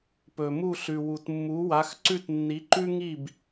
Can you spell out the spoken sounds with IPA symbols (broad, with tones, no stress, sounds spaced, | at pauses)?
p ɵ˩ m u˥˩ ɬ ʉ˩ w u˩ t mː u˩˥ w a˩˥ x ǀ ʉ˥˩ t nː i˩˥ ǃ ʉ˥ ŋ i˥˩ b